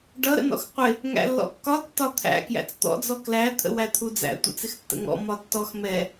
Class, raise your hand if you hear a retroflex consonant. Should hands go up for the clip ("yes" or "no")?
yes